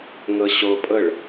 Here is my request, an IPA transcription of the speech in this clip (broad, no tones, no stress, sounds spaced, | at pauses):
ŋ ɤ ɕ o pʼ ɤ ɭ